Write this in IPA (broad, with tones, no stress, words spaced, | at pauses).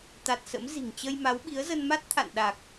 t̪a˨˩t̚ sə̰˧˥m zi̤˨˩ŋ t͡ɕə˧jma˨˦w ɓi˨˦ə̯zə˧n ma˦˥t̚ t̪ʰa̰˧˨n ɗa˨˩k̚